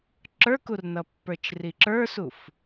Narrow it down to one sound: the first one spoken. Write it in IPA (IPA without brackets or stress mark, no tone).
ǁ